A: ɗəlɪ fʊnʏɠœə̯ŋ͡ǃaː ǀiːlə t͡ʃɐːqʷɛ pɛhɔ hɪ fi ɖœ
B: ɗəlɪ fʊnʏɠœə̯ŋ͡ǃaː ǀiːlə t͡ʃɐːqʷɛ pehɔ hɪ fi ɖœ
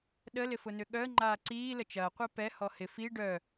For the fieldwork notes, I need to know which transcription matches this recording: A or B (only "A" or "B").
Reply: A